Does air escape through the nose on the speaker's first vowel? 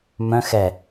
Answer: yes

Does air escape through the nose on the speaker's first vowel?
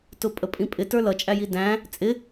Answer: no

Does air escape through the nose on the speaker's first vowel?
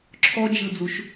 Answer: no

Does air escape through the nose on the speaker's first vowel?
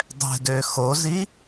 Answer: no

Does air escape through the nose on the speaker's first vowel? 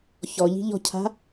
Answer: no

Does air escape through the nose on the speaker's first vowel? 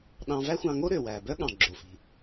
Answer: yes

